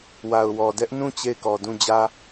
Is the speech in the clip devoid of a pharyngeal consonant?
yes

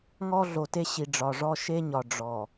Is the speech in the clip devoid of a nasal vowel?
yes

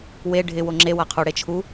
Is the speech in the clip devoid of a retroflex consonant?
no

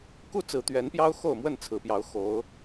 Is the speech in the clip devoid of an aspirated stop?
no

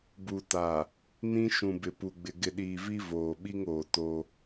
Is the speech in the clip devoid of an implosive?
no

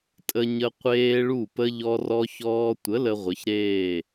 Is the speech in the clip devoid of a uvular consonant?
no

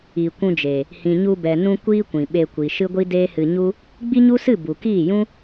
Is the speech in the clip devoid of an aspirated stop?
yes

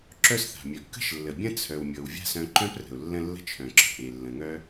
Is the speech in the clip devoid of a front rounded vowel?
no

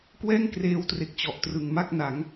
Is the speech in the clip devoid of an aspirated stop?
yes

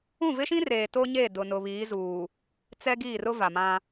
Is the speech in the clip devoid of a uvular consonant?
yes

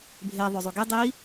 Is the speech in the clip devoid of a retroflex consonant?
yes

